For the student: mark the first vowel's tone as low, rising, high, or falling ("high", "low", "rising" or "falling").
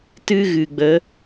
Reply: high